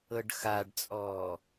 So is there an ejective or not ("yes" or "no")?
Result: yes